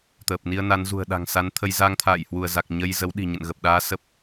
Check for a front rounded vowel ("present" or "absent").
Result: absent